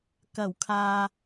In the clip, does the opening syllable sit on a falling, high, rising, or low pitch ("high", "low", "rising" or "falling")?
low